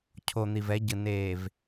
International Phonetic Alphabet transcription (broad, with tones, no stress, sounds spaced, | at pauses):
cʰ o˨ n̪ i˨ v ɛ˨˦ ɟ ɯ˨ n eː˨ v